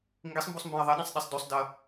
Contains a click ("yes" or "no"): no